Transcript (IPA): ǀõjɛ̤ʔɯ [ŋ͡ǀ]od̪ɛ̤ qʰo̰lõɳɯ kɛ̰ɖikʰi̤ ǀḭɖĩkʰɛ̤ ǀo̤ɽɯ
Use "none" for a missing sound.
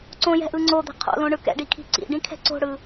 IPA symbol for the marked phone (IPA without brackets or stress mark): ŋ͡ǀ